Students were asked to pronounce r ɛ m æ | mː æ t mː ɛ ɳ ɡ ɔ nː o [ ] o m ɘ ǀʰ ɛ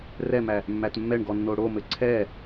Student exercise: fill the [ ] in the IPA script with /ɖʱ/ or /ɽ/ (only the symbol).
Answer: ɽ